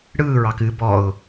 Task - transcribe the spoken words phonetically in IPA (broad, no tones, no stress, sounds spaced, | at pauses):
ɽ ɯː ɹ ɑ k ɨ b ɔ ʊ̯